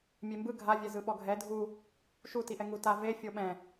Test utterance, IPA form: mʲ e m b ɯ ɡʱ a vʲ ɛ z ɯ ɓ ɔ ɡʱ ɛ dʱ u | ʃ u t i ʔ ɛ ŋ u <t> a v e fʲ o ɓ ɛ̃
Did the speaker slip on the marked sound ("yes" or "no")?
no